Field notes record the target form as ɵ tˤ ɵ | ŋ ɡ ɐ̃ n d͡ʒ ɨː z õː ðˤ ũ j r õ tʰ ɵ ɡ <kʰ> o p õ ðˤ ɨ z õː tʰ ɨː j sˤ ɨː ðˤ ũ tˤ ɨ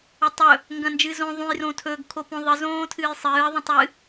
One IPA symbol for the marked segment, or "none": kʰ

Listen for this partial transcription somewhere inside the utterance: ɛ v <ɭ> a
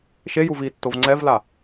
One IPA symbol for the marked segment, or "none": l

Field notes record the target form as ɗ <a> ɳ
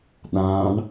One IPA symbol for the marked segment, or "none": ã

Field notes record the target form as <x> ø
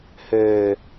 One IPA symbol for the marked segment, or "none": h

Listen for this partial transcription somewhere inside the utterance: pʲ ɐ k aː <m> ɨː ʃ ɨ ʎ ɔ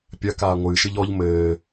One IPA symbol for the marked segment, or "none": ŋʷ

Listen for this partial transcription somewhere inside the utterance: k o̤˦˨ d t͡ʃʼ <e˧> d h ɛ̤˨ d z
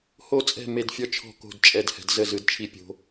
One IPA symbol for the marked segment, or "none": ɛ˧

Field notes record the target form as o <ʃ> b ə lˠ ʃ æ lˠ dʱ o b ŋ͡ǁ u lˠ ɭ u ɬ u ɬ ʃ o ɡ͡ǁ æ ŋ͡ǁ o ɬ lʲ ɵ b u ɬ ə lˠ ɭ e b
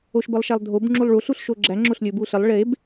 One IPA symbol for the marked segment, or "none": ʃ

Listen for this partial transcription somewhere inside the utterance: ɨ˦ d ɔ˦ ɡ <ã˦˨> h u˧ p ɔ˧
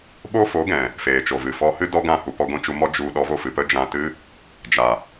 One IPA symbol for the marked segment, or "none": ã˦˨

